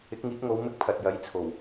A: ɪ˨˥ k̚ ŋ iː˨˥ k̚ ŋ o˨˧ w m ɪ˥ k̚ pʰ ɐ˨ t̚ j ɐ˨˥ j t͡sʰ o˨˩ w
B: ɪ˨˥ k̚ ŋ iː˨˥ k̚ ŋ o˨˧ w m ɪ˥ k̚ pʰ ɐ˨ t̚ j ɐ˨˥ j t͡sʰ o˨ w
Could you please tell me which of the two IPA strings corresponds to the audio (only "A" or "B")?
A